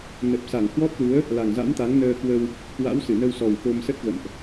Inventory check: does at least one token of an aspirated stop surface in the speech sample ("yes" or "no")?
no